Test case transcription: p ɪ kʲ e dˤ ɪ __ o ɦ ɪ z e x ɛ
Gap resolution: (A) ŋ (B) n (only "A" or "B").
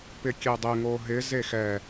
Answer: A